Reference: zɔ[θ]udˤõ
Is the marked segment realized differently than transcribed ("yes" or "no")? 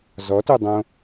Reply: yes